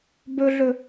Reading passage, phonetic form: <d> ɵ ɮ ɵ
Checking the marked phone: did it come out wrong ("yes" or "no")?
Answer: yes